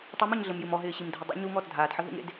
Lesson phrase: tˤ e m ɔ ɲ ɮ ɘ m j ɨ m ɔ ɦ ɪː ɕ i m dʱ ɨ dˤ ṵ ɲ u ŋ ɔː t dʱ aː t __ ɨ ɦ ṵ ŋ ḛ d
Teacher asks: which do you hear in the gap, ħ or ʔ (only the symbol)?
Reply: ħ